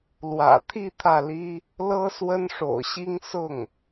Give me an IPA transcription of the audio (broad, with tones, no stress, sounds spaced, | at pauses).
l w ä̰˨˩ t̪ʰ i˥˧ t̪ʰ ä˥˩ l i˥ | l ɤ˥ s w ə˥ n ʂ o̰˨˩ ʊ̯ ɕ i˥ ŋ s ʊ˥˩ ŋ